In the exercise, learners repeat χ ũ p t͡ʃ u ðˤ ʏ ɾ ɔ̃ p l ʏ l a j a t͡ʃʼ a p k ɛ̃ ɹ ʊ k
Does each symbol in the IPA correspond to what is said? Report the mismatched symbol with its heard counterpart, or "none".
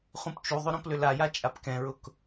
none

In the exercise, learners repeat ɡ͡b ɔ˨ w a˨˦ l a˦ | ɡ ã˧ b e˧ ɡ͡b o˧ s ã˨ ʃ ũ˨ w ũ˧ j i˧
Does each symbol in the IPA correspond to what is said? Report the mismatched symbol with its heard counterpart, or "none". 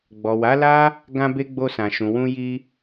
none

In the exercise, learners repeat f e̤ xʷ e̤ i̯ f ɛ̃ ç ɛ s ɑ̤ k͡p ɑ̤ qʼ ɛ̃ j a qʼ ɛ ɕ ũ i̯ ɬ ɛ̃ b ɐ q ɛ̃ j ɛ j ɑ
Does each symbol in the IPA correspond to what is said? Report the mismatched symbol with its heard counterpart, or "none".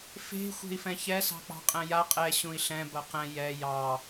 none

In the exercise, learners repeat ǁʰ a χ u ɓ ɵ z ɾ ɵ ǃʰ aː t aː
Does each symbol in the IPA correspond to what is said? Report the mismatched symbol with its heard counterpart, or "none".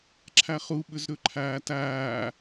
none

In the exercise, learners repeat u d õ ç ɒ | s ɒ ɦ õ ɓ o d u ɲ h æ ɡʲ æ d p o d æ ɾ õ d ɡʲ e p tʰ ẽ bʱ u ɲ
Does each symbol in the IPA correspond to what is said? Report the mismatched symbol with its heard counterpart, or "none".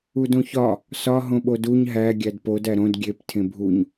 h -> ɦ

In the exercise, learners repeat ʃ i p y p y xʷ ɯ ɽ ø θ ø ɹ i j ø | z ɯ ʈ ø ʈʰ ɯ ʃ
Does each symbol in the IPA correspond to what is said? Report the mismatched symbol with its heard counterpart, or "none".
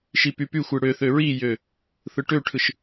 z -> θ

